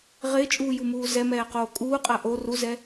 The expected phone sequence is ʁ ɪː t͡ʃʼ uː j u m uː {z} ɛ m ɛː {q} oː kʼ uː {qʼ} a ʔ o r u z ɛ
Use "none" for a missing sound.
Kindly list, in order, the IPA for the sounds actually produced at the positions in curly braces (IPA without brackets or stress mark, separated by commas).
z, q, qʼ